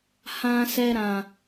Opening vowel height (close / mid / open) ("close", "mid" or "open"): open